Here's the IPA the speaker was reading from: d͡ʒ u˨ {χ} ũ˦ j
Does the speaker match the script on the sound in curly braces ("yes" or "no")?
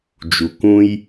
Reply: no